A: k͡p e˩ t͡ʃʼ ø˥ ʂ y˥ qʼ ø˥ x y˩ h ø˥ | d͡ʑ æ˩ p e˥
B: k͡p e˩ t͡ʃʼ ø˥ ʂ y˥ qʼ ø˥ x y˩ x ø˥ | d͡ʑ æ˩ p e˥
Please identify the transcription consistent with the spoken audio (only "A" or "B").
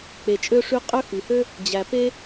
A